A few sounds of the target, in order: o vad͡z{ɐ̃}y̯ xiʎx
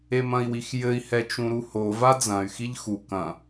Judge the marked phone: correct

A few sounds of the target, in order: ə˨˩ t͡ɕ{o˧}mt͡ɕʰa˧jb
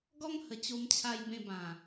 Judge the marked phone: correct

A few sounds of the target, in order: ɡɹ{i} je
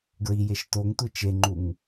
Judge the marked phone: correct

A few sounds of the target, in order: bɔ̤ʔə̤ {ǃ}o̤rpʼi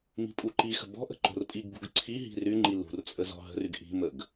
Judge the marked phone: correct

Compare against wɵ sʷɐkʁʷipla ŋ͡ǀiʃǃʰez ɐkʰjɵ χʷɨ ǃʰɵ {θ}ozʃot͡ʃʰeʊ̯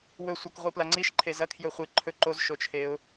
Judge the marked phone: incorrect: ǃ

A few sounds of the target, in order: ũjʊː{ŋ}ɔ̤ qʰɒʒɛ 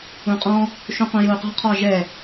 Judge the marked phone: incorrect: q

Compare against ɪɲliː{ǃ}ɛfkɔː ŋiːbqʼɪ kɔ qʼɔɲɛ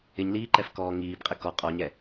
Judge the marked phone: correct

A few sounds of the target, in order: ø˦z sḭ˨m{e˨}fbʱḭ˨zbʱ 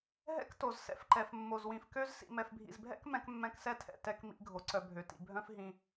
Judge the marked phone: incorrect: ɛ˨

